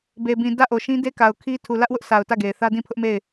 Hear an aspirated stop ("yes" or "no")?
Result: yes